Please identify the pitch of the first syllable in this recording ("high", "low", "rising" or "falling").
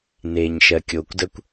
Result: low